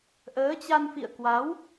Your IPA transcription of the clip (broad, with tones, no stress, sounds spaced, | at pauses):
ʔ əː˨˦ t͡ɕ a˧ n f ḭ˧˨ ə̯ k w a˨˦ w